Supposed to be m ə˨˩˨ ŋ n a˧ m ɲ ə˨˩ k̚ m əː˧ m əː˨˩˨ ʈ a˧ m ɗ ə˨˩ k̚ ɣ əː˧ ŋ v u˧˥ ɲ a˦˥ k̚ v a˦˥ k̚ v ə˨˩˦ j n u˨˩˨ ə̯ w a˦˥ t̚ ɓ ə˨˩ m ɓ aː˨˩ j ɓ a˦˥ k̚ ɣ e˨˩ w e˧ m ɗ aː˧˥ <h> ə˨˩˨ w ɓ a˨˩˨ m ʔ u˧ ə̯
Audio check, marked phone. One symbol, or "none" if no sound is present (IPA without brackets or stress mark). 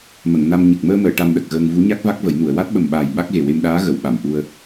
ɣ